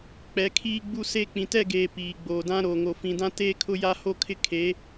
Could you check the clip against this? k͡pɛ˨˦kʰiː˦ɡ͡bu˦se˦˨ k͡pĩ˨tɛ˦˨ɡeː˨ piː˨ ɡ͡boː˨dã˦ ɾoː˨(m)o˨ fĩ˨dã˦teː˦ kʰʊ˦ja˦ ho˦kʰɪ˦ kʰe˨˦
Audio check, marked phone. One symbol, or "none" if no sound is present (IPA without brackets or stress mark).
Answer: ŋ